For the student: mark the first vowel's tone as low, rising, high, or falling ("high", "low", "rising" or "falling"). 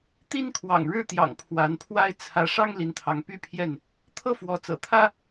high